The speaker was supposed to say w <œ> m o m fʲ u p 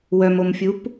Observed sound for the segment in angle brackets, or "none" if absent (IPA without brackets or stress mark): œ